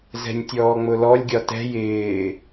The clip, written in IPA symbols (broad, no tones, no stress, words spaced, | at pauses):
zɛ̤nʲtʲɔːŋ͡mʊlɔlʲ ɡʲɒtɛ̤ jɪː